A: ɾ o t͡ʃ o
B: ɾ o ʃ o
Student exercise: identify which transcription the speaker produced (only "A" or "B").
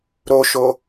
B